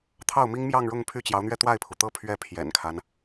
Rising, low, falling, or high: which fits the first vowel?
falling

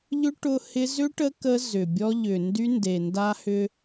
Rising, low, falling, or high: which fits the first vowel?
high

